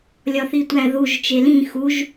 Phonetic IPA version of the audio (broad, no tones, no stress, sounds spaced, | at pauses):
lʲ ɒ θ i tʷ æ ð u ʒ t͡ʃ e l ĩ x u ʒ